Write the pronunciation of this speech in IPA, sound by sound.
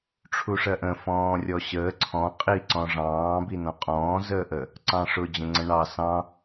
ʈ͡ʂʰuʂɜʔə̃ fɔ̃ːrʲɔɕəː ǀʰɔ̃ qʼi ǀɔ̃ʐɑ̃ː binɔ̃qʼɔ̃ː zəːʔə | ǀɑ̃ʂʊ d͡ʑə̃ŋ͡ǀə̃ɳɑ sɑ̃

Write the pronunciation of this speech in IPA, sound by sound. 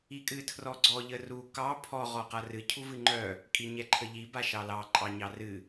ikʼɨ tʰrɔɡ͡ǀɔ ʎəru kɑ pʰɔ ʁɔqarɨ cʰuvɨŋ͡ǃœ | kʼiɲɛǃʰəʎi baʃɑlɑ ǃʼɑɲɑrɨ

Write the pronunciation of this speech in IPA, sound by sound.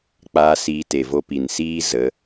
k͡paː˧siː˧te˨ vo˧pi˨nsiː˦ zə˨˦

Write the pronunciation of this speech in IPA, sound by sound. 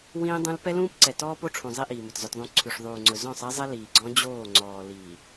wĩː˦dˤũ˦l pɛ˦lũː˦pǀɛ˨ tɔː˦po˦ʈ͡ʂʰũ˨ zˤi˦ʔiː˨mɵ˨t zœ˨t ðˤũ˨ ǀʰʉ˨ʂðˤuː˨ŋ͡ǀɵ˨ zɔ̃˦˨sˤɛ˦zˤɛ˦ liː˨ɡ͡ǀɔ̃˦ d͡ʑoː˦˨ ŋ͡ǀɔː˨ liː˨

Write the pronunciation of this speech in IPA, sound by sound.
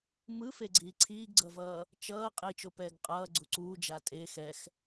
mɯfeɡ͡ǀiː ǀʰiːɡɡ͡ǀʌvʌː | t͡ʃʌː qʼit͡ʃopɛːɡ qʼʌːɡ͡ǀu ǀuːd͡ʒa tʼe xɛx

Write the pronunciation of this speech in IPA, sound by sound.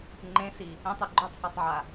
ŋ͡ǃẽsi | ɛ̃tˤɯ ɡ͡ǃotˤhatˤʕa

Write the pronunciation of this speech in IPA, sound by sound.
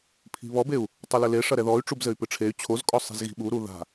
pʰi̤βɔbeu̯ | tˤɘlɘle ʂɐɾɛðɔy̯ ʈ͡ʂubzɘy̯pɨʈ͡ʂʰey̯ t͡ɕʰozkʼɔ sˤi̤zɣi̤ɓu ɾuða̤

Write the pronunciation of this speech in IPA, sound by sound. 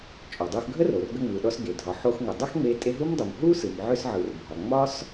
t͡ʃʼɔ˩dˤu˧xɡʱə˥ro˩r ɡə˧ŋ͡mɯ˩ɗɔ˧sɡe˩ dʱɒ˩ħo˧xŋʷə˩ dˤə˥xŋ͡me˧ tʼe˧ ɦu˥mdˤu˩m ɦu˥sɯ˩m ʕʏ˧sʕɯ˩r bʱɒ˩ ŋ͡mɒ˥s

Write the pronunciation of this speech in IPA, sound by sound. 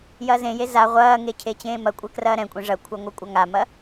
jɐːzẽje za ʁʷɐːŋe cʰet͡ɕẽːmɐkʷʼɛ krɐːɾɛ̃kʷʼẽ ʐɐkʷʰa ŋʷɛkʷʼaŋamɐ

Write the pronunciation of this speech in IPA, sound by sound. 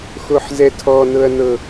xoħzɛtʰɔ nɤɐ̯nɤ

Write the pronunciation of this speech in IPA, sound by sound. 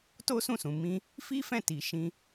to˦sũ˦˨sũ˨ mĩ˧ | fi˦fɛ̃˦˨ ti˨ ʃĩ˧

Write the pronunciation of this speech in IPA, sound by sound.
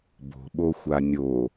bo̤ ɓoxʷanʲo

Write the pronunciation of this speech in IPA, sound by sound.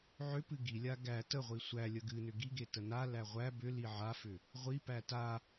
ʕʏpɨ ɡilʲa ɡæ təʁʷi sʷæ lʲəɡɨnʏ ɡiɡe tənalæ ʁʷæ bʏ liʕafʏ | ʁʷipæ ta

